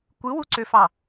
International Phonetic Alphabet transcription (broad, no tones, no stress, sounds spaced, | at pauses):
kʷ ɯ w u ǀ ø f ɑ